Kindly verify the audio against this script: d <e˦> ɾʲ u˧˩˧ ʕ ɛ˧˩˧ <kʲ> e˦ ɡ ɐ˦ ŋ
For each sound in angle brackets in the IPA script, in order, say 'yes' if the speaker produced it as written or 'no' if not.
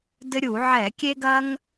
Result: no, yes

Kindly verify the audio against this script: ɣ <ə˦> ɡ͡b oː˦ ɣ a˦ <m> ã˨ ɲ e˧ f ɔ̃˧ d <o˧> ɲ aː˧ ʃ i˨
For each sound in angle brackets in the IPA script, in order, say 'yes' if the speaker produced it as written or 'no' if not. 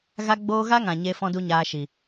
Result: no, no, no

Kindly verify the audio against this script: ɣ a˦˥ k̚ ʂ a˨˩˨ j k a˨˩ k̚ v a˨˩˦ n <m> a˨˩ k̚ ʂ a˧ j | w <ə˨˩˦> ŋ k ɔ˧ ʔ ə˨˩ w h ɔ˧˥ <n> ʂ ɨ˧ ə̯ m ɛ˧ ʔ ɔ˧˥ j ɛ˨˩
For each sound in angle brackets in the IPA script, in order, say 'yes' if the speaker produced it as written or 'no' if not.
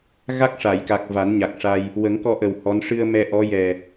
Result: no, yes, yes

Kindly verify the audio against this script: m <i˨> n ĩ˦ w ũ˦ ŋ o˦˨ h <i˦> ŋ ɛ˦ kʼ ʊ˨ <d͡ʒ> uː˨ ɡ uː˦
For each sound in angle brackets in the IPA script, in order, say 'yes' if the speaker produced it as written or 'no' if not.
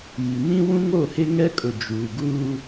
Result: yes, no, yes

